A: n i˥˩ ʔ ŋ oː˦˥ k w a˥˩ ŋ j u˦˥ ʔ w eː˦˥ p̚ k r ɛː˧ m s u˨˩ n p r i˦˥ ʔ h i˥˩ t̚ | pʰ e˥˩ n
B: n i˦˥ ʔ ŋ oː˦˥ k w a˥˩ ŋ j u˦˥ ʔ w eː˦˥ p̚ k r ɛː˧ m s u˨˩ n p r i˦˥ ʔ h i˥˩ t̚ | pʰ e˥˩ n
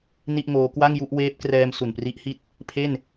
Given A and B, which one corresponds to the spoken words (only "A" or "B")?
A